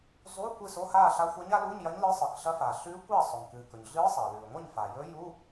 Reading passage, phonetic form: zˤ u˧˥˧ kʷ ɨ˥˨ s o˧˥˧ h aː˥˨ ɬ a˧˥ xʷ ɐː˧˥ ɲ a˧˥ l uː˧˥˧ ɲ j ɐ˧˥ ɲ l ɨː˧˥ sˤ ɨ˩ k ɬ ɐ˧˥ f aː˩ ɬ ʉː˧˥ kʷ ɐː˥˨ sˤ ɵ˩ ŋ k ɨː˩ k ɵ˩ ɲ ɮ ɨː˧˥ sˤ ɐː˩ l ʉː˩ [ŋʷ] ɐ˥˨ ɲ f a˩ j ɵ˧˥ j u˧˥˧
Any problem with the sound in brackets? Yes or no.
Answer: no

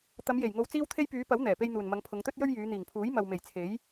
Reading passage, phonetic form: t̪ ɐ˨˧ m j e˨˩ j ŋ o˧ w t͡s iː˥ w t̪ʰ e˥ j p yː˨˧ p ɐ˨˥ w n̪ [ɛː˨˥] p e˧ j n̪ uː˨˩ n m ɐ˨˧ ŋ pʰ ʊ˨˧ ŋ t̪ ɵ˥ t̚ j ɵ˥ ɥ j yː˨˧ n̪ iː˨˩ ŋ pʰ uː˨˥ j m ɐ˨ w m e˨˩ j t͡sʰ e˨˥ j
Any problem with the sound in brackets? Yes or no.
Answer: yes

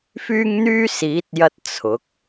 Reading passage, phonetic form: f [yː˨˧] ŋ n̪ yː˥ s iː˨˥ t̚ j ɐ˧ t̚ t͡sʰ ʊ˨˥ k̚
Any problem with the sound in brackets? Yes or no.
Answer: yes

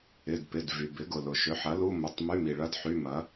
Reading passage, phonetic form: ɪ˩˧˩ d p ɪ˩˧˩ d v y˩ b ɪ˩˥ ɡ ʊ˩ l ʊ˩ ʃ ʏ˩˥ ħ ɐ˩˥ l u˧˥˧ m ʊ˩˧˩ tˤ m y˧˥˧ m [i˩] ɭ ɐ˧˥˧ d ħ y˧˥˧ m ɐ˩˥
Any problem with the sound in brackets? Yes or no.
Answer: no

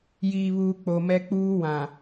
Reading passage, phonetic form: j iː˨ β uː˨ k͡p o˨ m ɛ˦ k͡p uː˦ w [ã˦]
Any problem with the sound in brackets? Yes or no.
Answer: yes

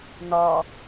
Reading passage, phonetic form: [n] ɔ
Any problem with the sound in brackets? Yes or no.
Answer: no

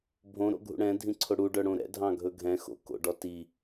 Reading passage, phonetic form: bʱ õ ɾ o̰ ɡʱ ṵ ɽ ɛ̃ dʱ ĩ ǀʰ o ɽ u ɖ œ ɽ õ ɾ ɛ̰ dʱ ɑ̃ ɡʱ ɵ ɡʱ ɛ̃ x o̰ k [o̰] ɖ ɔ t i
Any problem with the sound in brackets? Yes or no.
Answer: no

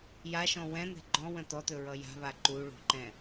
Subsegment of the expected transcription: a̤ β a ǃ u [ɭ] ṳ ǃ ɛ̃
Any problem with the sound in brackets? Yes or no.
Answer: no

